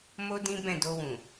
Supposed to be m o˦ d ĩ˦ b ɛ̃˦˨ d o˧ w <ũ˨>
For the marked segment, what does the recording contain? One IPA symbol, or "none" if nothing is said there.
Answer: ũ˨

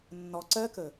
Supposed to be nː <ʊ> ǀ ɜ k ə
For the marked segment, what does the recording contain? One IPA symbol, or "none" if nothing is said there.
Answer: ɔ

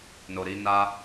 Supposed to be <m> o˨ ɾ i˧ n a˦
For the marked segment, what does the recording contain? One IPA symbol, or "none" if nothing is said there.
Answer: n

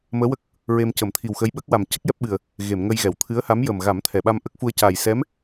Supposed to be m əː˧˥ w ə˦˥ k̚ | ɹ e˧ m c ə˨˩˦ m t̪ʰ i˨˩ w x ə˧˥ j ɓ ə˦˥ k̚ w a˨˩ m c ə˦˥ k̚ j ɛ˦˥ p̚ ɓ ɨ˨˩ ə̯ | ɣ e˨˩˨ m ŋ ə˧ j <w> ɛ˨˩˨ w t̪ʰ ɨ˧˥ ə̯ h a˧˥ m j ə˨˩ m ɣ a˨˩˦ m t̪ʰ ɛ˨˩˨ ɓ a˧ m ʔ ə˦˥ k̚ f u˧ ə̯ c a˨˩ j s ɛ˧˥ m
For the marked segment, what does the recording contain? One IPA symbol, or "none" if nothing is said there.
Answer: ɣ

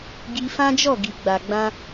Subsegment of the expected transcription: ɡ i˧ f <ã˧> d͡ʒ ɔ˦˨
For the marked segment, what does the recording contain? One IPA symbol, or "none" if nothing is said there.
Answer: ã˦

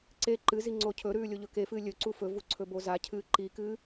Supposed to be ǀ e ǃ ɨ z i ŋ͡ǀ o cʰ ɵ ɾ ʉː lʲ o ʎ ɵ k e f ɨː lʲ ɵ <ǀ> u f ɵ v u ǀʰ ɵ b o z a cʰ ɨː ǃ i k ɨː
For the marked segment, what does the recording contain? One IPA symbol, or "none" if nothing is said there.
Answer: ǀ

